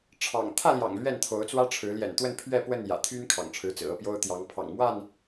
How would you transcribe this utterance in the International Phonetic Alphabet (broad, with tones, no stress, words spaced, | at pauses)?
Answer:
ʈ͡ʂʰɑ̰˨˩ŋ t̪ʰä˥˨ljɑ̰˨˩ŋ lɥɛ˥˨nt̪ʰo˨˦ʊ̯t͡swä˦ʈ͡ʂʰɻ̩˨˦ ljɛ̰˨˩nt̪wə˥˨npʰɥɛ˥˨pwə˥˨n jä̰˨˩t̪ʰy˦n kʰɑ̰˨˩ŋʈ͡ʂʰɻ̩˨˦t͡sɹ̩˨˩ ɤ˥˨pjo˦ʊ̯t̪jɑ˨˦ŋ pʰɑ̰˨˩ŋmwa˥˨n